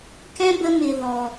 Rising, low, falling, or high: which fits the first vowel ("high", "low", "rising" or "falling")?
high